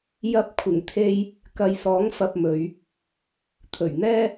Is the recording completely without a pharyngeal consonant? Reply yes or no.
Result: yes